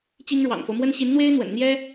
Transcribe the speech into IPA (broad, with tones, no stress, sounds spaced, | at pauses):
t͡ɕ i˥ ŋ ɻ w ɑ̰˨˩ ŋ f o˦ ʊ̯ m w ə˥ n ɕ i˧˥ n n̪ w e˥ ɪ̯ n̪ w ə̰˨˩ n n̪ j ɛ˥